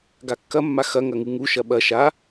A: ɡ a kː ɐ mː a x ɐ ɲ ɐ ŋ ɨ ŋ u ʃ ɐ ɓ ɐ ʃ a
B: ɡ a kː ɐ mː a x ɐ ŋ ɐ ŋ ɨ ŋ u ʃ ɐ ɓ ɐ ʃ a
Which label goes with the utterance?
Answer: B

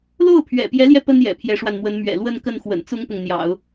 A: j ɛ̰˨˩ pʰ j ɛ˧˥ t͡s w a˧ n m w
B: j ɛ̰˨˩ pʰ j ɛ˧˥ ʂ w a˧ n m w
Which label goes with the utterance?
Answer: B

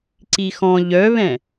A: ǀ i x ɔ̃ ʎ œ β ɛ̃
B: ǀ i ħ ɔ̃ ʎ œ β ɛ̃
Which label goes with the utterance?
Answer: A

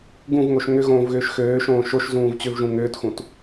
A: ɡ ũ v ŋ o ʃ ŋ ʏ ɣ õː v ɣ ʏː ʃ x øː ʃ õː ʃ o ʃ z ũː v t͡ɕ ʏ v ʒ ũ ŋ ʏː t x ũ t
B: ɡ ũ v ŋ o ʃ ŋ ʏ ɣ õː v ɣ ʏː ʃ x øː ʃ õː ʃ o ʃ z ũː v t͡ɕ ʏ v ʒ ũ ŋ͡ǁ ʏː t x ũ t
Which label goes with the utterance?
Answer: A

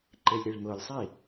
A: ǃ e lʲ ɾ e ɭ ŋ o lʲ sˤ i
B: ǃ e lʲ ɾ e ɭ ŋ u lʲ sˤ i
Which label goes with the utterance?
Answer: A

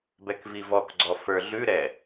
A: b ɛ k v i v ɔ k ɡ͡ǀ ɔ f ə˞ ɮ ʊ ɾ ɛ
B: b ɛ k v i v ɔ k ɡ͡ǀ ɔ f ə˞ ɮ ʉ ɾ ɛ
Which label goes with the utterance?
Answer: B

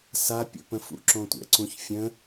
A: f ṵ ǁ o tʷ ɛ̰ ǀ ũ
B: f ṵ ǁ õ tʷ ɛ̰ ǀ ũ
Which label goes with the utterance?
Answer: B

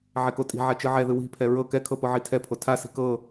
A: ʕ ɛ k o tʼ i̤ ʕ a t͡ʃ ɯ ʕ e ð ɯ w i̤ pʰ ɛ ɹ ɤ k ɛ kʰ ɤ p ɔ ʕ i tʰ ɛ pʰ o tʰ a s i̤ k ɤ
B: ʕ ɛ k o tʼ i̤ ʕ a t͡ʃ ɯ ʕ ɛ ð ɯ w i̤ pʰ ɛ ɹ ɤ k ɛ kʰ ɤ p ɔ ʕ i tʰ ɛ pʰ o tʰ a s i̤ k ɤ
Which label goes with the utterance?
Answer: B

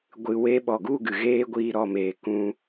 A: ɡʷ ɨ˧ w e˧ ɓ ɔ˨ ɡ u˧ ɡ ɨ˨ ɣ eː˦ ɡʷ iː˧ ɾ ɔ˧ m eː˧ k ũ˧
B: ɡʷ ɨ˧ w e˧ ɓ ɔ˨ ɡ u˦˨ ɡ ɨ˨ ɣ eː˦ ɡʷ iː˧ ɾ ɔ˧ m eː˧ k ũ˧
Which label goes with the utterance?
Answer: B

